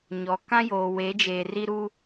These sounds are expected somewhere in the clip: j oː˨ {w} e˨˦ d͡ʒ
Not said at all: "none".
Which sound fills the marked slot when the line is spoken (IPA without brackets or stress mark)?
w